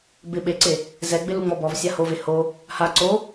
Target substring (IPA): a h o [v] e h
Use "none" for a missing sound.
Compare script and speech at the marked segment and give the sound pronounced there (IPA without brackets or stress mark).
v